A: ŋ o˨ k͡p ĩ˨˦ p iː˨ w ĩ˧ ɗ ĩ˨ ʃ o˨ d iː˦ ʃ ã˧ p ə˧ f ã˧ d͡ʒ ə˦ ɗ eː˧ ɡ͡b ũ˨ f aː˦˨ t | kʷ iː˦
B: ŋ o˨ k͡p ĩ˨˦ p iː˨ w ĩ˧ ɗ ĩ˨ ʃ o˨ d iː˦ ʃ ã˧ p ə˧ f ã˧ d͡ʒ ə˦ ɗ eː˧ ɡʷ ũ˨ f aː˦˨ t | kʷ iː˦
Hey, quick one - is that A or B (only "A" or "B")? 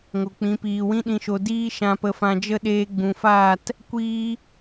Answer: A